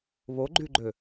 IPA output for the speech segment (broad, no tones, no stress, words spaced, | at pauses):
βoɡ͡ǃyɡ͡ǃø